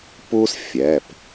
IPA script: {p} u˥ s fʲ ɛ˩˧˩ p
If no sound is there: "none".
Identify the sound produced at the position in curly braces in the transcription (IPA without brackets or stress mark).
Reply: p